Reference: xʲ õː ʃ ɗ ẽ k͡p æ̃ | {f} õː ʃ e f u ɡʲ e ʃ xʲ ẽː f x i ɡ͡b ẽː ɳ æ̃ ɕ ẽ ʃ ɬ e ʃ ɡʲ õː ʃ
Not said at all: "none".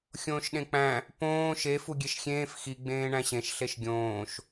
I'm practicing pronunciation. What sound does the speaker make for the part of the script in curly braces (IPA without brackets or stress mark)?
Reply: p